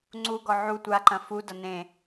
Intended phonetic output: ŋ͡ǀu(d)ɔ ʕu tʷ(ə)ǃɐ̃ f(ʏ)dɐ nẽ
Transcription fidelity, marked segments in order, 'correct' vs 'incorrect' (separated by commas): incorrect, incorrect, incorrect